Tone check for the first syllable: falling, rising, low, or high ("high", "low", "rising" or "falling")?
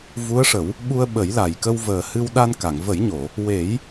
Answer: rising